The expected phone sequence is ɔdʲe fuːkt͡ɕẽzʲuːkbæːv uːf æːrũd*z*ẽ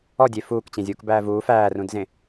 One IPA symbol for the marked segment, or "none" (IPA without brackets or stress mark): z